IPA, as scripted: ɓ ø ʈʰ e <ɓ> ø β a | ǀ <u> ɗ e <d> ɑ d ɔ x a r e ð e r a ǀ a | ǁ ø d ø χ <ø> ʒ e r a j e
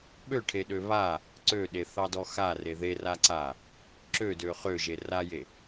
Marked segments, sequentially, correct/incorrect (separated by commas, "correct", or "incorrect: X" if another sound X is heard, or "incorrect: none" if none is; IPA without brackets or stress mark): incorrect: ɗ, incorrect: ø, incorrect: θ, correct